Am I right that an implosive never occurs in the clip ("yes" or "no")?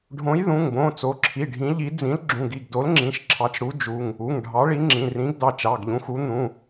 yes